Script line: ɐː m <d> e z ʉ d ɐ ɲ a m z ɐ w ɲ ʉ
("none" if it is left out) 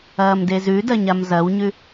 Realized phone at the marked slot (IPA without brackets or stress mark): d